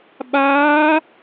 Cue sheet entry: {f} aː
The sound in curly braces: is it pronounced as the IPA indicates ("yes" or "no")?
no